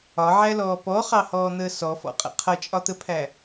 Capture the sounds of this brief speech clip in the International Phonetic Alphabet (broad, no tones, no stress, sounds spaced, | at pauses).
ɒ ʕ æ l ɔː p ɔ χ ɑ h ɔː n̪ əː s ɔ f ɔ̰ qʼ ə̰ qʰ ʌ t͡ʃʼ ɒ t̪ ə pʰ æ